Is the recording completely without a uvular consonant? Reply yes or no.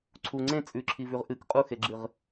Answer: no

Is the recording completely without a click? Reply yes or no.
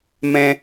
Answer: yes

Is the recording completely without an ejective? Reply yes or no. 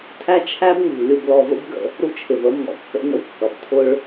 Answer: yes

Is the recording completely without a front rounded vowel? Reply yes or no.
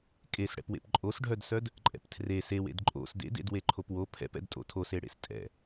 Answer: no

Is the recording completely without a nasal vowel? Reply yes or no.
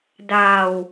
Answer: yes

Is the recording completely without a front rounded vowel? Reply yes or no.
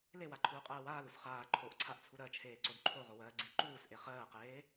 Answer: yes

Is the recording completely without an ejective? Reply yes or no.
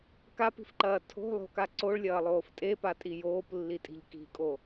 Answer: no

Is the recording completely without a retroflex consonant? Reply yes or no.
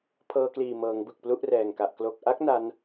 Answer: yes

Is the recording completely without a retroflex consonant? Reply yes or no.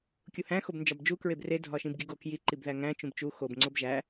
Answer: yes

